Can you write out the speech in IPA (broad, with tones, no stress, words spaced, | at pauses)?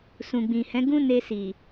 sũ˨ɡ͡bĩ˨hɛ̃˨˦ ɡũ˦ne˧si˨